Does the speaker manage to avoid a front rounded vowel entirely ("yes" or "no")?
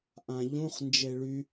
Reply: no